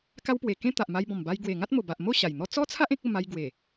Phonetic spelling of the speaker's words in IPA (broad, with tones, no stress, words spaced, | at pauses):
ka˦wpwe˨˩ kẽ˦t̪a˨ʔma˧jbɔ̃˨˩m ba˧jɡwe˨˩ ŋa˦t̚mo˨˩ba˨ʔmo˥˧ ɕa˨˩jn̪ɔ˦ t͡sɔ˦t͡sʰa˦ʔ ẽ˦k̚o˥˧ma˧j ɡwe˨˩